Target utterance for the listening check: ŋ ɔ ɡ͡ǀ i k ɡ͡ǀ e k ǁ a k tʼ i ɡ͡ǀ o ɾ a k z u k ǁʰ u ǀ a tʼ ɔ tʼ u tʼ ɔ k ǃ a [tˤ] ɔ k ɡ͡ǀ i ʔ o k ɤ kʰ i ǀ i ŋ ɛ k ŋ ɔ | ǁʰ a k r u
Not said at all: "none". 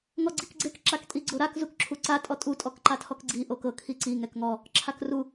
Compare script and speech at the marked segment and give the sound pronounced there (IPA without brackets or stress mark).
tʰ